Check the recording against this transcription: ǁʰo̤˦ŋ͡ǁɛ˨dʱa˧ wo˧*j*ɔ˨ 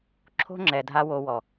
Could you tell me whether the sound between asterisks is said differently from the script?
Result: yes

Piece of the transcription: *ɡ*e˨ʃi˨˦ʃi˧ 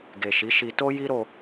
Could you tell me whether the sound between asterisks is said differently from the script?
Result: no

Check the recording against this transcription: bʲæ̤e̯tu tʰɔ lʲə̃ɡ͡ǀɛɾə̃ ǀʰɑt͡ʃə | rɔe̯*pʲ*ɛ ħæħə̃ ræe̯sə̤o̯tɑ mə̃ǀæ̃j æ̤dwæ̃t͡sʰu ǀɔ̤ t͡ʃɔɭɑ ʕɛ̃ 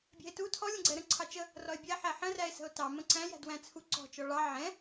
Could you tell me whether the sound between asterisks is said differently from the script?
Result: yes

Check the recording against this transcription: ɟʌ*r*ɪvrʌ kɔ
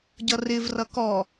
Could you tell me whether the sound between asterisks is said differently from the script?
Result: no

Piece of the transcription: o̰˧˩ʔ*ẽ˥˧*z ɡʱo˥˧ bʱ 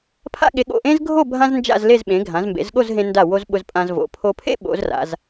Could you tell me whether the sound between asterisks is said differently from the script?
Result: yes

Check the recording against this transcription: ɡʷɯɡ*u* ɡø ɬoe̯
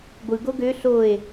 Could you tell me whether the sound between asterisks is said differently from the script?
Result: yes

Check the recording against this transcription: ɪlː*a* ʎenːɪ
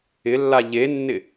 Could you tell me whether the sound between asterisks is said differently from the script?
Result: no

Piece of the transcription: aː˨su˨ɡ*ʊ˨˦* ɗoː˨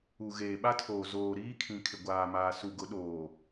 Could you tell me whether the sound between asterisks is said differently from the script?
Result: no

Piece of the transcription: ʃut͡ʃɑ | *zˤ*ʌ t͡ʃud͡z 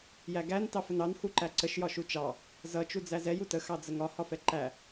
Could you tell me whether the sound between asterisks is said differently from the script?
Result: yes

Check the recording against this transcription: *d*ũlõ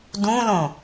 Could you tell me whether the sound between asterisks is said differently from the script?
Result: no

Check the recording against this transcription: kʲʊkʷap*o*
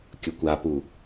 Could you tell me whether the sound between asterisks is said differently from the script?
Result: yes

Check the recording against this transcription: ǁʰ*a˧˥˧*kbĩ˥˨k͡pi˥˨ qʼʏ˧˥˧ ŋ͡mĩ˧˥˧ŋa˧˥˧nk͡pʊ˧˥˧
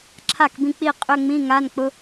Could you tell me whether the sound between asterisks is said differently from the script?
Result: yes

